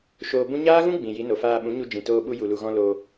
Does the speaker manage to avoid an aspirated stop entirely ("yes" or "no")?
yes